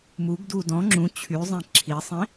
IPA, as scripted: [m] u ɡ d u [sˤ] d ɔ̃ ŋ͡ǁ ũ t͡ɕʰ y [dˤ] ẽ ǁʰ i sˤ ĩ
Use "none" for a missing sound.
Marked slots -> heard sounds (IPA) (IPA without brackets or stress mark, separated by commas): m, none, zˤ